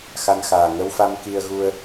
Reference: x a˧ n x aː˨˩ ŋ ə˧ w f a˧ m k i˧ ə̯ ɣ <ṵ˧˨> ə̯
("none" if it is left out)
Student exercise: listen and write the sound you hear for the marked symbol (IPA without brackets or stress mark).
u˧